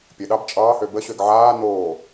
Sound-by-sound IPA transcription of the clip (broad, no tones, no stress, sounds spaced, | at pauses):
pʲ ə ɗ ɑ b t͡ʃʼ ɑː h ø b ə ɕ ø ɡ ʕ aː n oː